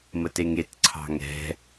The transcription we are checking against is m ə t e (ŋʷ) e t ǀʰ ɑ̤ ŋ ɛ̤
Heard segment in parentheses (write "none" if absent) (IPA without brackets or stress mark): ŋ